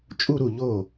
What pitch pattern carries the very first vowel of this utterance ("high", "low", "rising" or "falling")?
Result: falling